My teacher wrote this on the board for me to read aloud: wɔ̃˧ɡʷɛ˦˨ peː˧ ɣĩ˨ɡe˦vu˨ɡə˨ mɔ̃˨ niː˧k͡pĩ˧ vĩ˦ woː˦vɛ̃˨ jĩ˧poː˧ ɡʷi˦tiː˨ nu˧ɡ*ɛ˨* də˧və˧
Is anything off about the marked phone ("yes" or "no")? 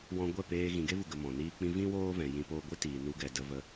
no